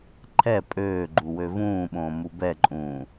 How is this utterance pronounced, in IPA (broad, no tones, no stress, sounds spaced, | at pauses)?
ǃʰ ɛ pʼ øː ɡ͡ǃ u w ø v ũː ɓ õː m u b ɛ ǃʼ ũː